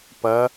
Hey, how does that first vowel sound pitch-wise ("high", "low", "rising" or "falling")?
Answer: rising